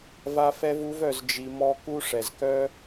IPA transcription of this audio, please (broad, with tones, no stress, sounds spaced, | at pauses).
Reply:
v a˦ f ɛ˦ v u˦ v œ˧ z d͡ʒ i˧ m ɔ˦ k u˦ ʂ ɛ˨ z k œ˦